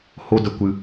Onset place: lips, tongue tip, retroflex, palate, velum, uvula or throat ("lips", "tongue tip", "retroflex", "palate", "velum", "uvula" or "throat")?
throat